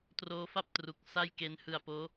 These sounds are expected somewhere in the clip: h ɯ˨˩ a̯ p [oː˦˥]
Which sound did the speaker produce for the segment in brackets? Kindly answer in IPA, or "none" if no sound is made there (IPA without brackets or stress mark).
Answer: oː˦˥